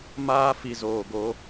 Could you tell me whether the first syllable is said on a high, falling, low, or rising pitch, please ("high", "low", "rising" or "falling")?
high